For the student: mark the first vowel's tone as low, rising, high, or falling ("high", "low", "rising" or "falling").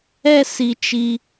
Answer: high